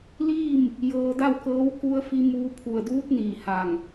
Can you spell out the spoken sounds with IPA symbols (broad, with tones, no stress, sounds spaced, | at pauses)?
l iː˥˨ m | j ɤː˧ d a˥˨ w k ɤː˧˥ w k u˧ ə̯ f i˧ m uː˧ pʰ u˧˩ ə̯ d uː˧˥ t̚ n iː˧˩ h a˧˩ ŋ